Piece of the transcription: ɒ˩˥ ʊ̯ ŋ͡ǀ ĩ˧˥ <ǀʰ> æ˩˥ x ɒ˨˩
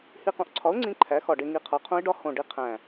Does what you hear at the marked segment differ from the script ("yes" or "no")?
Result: yes